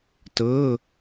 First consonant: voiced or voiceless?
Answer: voiceless